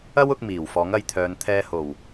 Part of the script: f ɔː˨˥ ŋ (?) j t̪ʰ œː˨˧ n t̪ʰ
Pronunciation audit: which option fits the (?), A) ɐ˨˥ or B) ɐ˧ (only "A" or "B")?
B